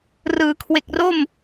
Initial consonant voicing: voiced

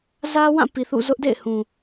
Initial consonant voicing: voiced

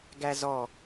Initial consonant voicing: voiced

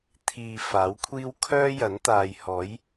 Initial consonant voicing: voiceless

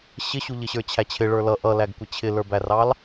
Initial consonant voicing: voiceless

